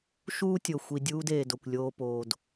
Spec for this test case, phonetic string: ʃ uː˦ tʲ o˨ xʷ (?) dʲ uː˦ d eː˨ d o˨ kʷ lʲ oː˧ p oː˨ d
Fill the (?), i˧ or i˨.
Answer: i˨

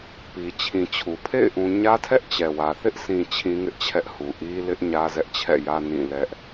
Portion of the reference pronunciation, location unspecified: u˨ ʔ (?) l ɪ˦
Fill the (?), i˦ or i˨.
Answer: i˦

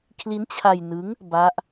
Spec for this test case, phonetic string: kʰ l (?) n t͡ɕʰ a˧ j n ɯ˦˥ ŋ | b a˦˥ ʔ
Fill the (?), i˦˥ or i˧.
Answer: i˦˥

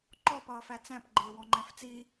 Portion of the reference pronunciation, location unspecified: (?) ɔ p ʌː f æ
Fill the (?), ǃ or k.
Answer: ǃ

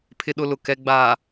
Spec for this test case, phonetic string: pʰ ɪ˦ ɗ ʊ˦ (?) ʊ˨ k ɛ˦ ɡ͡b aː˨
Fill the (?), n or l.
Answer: l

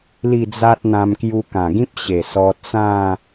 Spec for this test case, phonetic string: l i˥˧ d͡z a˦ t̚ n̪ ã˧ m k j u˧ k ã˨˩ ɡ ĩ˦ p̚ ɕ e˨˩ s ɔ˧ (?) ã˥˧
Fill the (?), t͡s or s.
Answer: t͡s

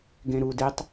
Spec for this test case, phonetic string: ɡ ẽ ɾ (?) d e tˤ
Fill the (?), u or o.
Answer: u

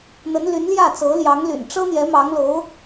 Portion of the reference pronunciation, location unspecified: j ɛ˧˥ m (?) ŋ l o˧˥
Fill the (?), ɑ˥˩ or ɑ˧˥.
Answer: ɑ˧˥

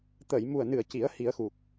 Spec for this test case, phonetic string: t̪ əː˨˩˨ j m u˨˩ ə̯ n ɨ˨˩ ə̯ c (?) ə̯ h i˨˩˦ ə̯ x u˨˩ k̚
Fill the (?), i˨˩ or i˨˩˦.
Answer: i˨˩˦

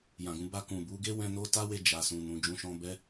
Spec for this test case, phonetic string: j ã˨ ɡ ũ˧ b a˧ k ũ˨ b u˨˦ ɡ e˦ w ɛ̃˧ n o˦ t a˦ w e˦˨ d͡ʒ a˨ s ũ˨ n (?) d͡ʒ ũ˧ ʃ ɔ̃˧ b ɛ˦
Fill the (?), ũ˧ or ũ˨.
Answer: ũ˨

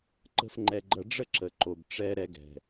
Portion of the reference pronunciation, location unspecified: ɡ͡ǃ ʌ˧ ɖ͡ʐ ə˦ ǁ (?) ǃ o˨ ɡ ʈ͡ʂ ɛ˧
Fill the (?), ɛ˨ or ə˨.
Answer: ə˨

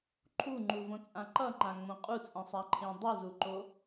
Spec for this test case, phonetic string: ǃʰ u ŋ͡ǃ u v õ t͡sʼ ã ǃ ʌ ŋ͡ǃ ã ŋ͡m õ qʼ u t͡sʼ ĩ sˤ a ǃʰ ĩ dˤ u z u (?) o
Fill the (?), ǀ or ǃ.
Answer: ǃ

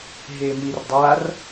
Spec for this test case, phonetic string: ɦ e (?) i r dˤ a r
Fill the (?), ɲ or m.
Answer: m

